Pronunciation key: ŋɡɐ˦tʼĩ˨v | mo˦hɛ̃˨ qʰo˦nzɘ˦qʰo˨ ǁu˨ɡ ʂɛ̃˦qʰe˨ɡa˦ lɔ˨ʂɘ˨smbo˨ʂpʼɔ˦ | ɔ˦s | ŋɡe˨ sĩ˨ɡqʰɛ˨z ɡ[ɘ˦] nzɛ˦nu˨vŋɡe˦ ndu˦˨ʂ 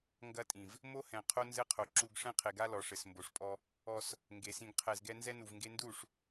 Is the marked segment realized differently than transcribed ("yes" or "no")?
yes